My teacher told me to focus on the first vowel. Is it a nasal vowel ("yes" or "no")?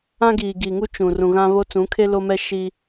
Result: yes